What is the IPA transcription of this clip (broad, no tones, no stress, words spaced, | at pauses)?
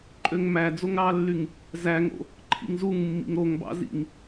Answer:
ǃʼøŋmæ d͡zoŋɾɑlːyŋ | zæŋo̰ | ǃʰḭŋzuŋ mːḭŋɾoŋbɑ̰ zḭŋ